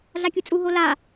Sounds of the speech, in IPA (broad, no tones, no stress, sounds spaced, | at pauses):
ɮ a kʲ u t͡sʼ u ɦ o l a